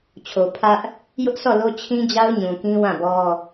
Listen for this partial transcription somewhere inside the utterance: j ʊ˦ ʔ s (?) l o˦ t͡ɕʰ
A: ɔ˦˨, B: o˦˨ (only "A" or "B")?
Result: A